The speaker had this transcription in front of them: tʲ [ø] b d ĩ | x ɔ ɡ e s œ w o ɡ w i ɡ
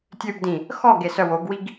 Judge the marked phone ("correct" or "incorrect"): correct